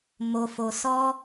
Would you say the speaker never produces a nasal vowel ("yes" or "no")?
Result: yes